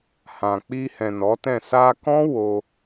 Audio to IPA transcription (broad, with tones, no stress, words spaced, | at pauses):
hã˨ k͡pi˧hɛ̃˨ nɔ˨˦tɛ̃˦˨ sa˧kɔ̃˦ wo˧